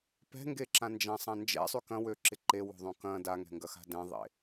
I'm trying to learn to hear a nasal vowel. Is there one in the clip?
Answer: yes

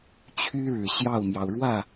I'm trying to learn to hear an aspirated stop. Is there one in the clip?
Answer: yes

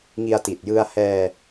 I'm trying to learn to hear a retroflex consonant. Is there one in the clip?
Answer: no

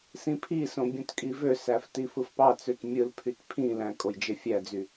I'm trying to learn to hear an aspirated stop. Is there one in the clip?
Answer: yes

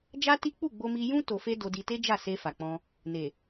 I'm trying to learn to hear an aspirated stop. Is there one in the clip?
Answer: no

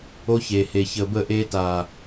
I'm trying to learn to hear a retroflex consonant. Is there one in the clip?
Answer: no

